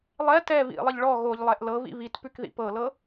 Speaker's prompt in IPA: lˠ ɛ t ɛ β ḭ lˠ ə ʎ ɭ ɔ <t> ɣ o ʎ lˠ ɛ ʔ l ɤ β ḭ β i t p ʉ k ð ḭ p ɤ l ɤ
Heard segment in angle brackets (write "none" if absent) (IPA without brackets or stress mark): none